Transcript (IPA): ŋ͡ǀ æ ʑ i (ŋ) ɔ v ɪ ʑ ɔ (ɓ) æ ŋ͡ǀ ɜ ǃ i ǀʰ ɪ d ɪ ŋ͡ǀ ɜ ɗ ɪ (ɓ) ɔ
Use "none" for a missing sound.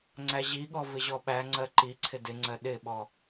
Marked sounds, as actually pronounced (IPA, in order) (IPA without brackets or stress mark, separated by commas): ɠ, ɓ, ɓ